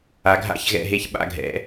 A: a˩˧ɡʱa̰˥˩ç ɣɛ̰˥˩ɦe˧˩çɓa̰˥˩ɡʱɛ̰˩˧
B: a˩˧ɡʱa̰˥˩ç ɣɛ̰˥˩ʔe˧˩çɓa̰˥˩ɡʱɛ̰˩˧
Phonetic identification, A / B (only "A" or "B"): A